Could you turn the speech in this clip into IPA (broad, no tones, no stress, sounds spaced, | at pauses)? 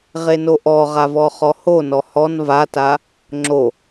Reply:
ʁ e n o ʔ ɔ ʁ a v ɔ χ ɔ h o n ɔ h ɔ n v a t a | ŋ͡ǁ o